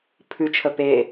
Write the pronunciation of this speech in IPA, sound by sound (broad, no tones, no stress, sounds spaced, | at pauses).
pʰ ʉ t͡ʃʰ ə p e